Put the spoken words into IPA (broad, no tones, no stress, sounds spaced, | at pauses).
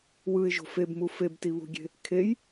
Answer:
w ɯ ɪ̯ ʒ o̤ f e b m u f e b t i β ṳ ɡʲ e̤ | kʰ e j